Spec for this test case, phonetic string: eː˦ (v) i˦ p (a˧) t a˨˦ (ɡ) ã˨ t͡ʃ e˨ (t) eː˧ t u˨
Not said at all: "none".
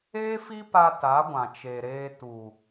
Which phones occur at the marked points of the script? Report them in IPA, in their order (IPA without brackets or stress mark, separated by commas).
f, a˧, ɡʷ, ɾ